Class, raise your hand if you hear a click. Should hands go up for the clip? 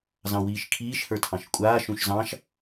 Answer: no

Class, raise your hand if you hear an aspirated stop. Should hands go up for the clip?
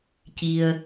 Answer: no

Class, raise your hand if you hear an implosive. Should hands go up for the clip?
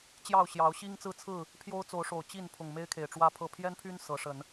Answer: no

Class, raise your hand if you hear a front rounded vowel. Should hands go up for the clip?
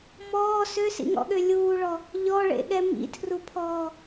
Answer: yes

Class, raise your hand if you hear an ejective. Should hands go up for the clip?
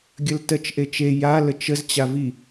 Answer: no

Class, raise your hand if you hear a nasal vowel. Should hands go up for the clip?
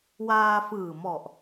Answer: no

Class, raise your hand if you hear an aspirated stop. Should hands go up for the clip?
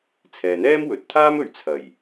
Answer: yes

